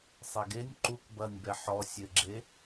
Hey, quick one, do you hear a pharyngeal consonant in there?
yes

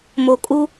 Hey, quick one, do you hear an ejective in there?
yes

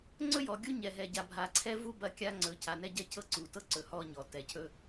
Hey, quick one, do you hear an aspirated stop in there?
yes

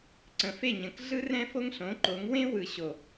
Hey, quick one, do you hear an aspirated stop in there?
no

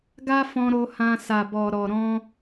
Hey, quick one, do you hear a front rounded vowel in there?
no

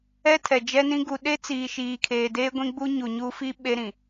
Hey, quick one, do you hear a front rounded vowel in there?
no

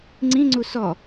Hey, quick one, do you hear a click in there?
yes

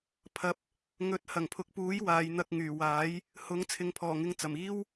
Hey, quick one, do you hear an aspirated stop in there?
yes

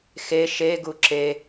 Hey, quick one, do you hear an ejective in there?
no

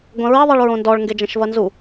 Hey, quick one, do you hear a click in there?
no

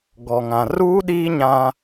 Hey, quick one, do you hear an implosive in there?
yes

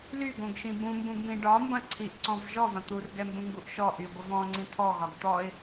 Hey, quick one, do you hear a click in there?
yes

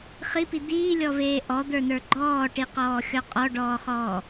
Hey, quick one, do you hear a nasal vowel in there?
no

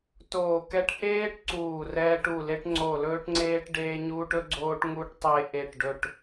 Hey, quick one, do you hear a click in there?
yes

